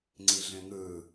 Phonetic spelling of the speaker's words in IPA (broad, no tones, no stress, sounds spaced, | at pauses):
ŋ͡ǀ i ɮ ẽ ŋ ɯ